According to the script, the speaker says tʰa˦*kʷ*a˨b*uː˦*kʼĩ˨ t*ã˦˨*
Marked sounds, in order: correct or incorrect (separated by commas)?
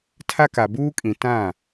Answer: incorrect, correct, correct